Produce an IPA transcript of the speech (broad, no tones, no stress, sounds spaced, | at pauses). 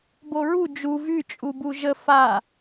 b o ɹ u d͡ʒ u v y t͡ʃʼ u b u ʒ ə f a